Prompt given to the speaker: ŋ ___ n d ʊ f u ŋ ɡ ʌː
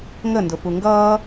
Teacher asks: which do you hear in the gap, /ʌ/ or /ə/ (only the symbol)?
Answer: ə